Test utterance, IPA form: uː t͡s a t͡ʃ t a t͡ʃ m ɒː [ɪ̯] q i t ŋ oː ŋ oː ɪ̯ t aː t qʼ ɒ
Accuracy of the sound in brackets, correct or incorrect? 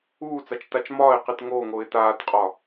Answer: correct